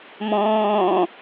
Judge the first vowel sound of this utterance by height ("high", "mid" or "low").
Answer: mid